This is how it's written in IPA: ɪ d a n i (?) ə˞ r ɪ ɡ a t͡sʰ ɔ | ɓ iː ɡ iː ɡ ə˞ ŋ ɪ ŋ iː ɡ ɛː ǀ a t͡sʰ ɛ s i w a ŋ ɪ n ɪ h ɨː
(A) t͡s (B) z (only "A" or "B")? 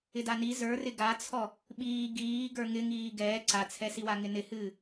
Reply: B